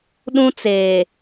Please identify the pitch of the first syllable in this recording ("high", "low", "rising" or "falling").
high